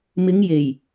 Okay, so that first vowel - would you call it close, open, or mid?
close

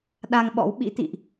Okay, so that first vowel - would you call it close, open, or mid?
open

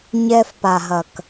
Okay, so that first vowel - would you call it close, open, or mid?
mid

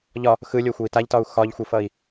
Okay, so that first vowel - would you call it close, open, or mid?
open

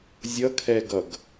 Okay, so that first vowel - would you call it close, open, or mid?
mid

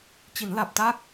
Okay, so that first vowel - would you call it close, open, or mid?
close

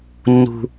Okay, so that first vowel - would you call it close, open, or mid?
close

